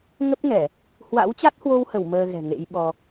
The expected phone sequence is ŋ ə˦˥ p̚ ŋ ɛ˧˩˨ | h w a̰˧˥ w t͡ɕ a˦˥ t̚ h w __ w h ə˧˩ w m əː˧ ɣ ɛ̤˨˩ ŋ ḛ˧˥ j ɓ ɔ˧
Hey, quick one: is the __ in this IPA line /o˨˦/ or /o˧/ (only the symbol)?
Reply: o˧